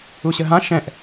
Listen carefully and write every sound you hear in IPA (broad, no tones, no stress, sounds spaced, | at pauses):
u ɕ ə ɦ ã ʃ ɛ̃ ʔ